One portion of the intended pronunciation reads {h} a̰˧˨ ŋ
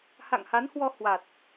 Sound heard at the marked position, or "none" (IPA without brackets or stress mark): h